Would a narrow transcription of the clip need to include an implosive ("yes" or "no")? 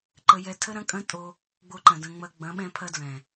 yes